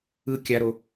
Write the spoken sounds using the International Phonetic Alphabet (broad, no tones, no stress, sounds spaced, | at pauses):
ɯ kʲ a ɾ o